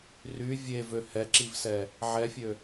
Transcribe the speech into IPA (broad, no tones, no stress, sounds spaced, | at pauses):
r y vʲ e v ø h ɛ ǁ i v s ɛ | ʕ ɛ fʲ ø